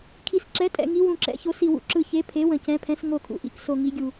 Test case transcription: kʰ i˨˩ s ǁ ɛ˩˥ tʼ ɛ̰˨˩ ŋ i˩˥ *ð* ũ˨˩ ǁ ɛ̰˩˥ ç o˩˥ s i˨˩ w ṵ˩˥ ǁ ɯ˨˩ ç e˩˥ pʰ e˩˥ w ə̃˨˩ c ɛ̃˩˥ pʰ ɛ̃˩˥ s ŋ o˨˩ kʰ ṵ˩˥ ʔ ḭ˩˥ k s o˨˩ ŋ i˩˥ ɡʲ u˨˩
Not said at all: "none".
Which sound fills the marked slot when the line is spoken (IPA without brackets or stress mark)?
w